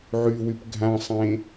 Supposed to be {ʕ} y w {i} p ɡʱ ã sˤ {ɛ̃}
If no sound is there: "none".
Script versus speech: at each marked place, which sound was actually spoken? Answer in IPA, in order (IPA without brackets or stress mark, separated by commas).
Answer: ʕ, y, ẽ